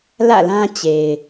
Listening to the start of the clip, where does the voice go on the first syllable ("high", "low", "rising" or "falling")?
falling